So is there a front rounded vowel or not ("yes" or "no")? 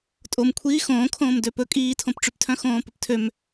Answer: yes